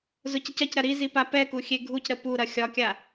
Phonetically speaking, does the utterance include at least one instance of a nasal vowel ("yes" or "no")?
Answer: no